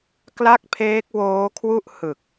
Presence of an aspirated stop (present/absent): present